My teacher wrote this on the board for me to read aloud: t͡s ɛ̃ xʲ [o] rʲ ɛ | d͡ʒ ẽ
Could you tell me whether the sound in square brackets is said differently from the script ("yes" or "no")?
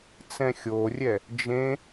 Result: no